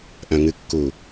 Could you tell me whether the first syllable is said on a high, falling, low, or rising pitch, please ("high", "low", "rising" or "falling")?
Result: low